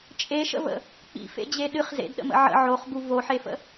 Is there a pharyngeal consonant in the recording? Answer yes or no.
yes